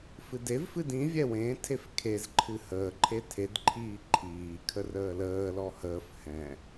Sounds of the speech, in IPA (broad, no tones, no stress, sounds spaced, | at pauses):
f ɨ d e v f ɨ d ĩ vʲ ɛ w ẽ tʰ e f kʰ e z ǃʰ ɨ h əː ǃʰ e tʰ e d ǃʰ iː ǃʰ iː kʰ ə r əː l əː l ɔ h əː f h ɛ̃